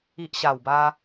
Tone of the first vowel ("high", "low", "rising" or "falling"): low